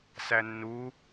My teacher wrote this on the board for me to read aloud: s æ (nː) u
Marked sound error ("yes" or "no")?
no